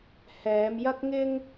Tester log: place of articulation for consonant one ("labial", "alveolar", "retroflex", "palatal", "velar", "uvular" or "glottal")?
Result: glottal